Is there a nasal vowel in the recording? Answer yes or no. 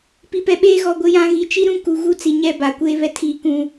yes